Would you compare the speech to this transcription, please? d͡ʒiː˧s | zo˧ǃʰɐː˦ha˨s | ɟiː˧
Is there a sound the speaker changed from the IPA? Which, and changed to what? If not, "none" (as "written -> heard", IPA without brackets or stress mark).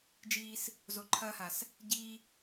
none